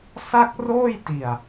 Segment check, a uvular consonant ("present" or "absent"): absent